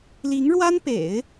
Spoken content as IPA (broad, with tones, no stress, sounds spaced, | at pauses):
l i˧˥ ŋ ɻ w a˥ n p ḛ˨˩˦ ɪ̯